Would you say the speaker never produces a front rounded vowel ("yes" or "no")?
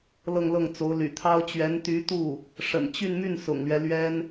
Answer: no